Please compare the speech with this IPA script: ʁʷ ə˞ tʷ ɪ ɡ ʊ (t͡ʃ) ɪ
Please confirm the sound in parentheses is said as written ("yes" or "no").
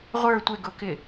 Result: no